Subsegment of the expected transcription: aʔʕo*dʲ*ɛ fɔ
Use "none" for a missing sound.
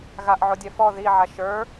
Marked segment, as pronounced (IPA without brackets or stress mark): dʲ